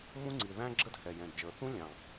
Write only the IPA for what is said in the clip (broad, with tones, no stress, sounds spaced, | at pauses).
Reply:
m ũ˦ ŋ͡ǀ i˨˩ ð æ̃˦ ɡ͡ǁ ə˦ d h ɛ˨˩ j ɛ̃˨˩ d d͡ʒ ə˞˨˩ θ ũ˦ lʲ ɑ̃˨˩